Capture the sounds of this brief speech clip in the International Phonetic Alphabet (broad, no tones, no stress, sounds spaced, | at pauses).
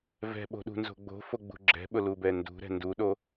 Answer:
v ɛ̤ ɓ o̤ ɗ ṳ n z o̤ ɡ͡b o̤ f o ɡ͡b ṳ ɡ͡ǁ ɛ̤ ɓ ʊ l u b ɛ n d ṳ ɾ ɛ̤ n d u ɗ o